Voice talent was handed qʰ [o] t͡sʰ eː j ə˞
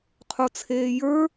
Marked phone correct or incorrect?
correct